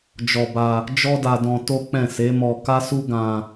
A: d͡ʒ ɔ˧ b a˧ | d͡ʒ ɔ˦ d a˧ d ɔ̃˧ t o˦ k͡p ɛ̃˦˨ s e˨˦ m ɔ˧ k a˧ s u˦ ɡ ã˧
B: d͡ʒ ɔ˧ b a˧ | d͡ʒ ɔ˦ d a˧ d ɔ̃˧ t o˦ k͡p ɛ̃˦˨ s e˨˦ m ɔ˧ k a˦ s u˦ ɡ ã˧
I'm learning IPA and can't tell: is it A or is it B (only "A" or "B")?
B